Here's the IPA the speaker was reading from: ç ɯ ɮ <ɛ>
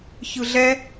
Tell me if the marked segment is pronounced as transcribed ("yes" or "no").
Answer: yes